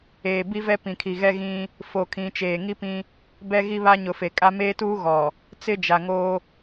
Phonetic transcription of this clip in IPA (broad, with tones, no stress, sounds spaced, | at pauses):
eː˨ b i˦ v ɛ˦ p ĩ˨ kʰ i˨ ɣ ɛ˦ ɣ ĩ˦ | f o˨ kʰ ĩ˨ t͡ʃ eː˨ ŋ i˦ p ĩ˦ | b ɛ˦ ɣ i˦ β a˦ ɲ ʊ˨ f e˨ kʼ a˦ m eː˦ t uː˦ ɣ ɔ˨ | t͡s ɪ˦ d͡ʒ a˨ ŋ oː˦